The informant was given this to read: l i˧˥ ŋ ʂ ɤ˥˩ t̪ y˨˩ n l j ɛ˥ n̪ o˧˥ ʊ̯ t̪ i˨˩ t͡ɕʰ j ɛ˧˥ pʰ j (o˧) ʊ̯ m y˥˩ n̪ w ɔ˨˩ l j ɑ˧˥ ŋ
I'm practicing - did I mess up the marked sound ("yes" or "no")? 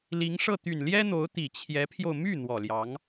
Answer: no